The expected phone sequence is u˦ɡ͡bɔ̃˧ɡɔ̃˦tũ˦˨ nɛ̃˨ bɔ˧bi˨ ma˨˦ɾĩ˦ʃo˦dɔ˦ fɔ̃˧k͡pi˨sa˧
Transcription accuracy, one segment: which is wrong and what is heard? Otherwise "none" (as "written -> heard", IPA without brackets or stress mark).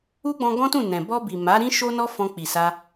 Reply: d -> n